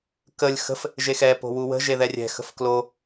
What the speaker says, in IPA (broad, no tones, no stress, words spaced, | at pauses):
kəlʲ xə̤f | ʒexɛ po̤wuwə̤ ʒeðɛrʲɛ̤ xə̤fklo